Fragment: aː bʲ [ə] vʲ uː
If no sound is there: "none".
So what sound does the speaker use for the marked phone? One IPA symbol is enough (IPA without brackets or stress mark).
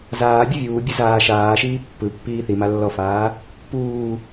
ɯ